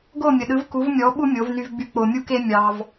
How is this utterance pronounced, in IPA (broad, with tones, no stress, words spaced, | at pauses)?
ɡo˦˨mʲə˨ɗɯ˨˦v ku˨˦vmʲɔ˨˦ ɓu˦mʲo˨˦vny˧vɡ͡by˧ k͡po˨mʲu˧ke˧ mʲɑ˧v